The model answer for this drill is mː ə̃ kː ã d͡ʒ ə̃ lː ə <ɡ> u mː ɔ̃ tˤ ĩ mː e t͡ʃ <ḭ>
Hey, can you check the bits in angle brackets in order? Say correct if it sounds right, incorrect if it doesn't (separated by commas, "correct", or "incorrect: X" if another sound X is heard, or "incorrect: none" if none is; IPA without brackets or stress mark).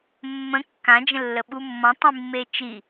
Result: incorrect: ɓ, incorrect: i